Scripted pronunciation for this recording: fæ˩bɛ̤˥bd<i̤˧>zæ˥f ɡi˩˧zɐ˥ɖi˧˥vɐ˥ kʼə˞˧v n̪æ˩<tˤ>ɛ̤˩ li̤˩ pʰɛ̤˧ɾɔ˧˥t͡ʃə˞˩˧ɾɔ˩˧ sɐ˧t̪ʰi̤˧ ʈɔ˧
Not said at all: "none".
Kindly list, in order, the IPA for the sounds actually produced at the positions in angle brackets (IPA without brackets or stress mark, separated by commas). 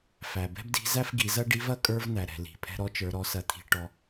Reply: i̤˧˥, ɾ